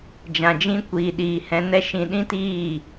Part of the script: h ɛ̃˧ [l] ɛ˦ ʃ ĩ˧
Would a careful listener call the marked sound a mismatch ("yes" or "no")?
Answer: yes